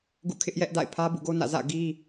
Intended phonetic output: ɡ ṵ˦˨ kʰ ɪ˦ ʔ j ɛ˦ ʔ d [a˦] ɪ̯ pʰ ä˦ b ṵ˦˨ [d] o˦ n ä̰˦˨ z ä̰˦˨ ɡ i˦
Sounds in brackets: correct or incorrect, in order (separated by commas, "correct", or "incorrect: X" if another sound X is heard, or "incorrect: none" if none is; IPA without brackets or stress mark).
incorrect: a̰˦˨, incorrect: ɡ